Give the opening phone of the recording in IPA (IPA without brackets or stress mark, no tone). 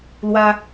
l